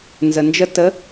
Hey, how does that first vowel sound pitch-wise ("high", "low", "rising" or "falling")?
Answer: low